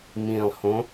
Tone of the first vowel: low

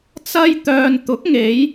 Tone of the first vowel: high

